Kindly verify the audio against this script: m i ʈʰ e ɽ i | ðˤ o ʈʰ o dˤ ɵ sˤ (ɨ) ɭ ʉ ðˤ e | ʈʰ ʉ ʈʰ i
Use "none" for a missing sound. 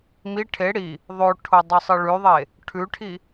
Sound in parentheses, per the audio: ɨ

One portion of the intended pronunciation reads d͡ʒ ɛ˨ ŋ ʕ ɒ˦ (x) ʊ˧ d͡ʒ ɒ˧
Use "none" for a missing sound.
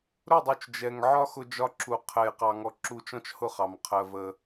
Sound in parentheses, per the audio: x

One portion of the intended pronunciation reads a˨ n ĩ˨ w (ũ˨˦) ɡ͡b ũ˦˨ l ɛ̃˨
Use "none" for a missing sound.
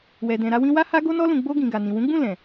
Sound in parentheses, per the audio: ũ˨˦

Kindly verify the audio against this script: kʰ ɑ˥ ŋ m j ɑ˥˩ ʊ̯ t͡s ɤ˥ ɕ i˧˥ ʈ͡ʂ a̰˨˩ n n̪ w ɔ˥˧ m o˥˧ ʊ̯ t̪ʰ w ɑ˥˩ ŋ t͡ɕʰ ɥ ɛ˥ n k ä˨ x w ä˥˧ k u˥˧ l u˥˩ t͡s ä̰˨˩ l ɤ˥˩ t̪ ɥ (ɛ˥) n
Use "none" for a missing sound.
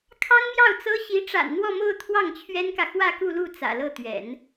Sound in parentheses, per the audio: ɛ̰˨˩˦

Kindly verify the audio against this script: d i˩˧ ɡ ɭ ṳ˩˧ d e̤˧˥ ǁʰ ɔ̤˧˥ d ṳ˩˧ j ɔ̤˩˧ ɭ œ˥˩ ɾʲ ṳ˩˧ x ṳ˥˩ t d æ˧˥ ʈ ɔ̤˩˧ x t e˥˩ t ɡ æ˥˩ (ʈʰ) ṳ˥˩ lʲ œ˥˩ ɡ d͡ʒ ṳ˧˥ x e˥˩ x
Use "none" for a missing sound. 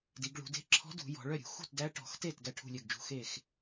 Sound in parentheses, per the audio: ʈʰ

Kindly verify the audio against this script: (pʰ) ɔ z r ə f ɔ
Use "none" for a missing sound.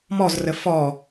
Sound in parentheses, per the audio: m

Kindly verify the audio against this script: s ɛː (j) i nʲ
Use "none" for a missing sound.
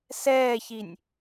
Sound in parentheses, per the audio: ç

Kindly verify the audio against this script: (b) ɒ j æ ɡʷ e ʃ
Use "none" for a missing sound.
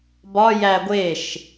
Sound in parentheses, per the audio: b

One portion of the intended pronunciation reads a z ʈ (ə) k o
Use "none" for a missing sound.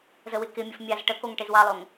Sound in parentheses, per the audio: ə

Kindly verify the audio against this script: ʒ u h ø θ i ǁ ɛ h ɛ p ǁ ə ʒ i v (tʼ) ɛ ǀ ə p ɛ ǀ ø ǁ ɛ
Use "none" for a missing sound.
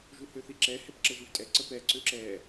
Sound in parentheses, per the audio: tʼ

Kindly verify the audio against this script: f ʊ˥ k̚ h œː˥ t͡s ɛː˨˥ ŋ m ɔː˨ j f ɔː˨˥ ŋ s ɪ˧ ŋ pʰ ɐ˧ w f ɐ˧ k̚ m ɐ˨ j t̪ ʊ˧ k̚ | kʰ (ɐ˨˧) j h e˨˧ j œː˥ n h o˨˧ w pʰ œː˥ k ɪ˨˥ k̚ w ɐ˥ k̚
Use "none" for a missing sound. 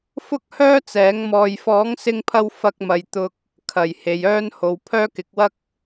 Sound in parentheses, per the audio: ɐ˨˩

